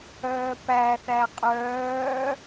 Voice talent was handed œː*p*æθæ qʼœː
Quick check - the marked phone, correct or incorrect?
correct